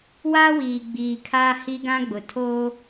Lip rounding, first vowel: unrounded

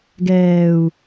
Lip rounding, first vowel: unrounded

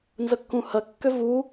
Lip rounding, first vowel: unrounded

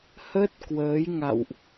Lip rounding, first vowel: unrounded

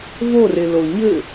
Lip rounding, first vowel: rounded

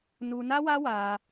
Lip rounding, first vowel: rounded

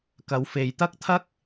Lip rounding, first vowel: unrounded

